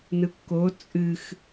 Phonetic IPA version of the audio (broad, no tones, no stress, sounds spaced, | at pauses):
n ɯ kː o t͡sʼ ɨ x